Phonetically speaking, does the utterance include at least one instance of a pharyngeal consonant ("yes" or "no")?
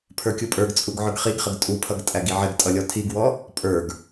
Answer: yes